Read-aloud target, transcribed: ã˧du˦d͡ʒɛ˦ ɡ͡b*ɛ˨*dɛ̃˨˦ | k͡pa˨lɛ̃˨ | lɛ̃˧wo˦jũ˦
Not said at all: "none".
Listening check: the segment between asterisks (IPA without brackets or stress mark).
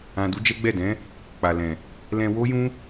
ɛ˦˨